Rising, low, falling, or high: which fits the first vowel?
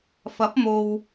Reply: rising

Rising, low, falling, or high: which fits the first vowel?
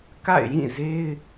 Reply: falling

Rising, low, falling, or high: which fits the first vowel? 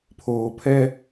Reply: low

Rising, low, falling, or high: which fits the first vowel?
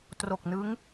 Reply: low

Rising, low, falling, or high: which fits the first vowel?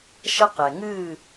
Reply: high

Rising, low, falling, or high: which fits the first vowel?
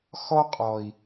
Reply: high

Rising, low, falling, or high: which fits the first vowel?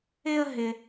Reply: high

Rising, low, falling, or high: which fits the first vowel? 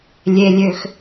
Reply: low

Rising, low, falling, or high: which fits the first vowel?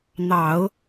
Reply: low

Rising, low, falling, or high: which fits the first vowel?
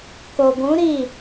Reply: low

